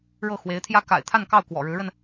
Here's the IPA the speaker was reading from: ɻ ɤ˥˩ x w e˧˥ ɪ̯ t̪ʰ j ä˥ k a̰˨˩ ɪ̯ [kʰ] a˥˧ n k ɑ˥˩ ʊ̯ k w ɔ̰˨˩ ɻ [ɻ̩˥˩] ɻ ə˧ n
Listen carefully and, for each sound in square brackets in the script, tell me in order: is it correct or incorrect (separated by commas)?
incorrect, incorrect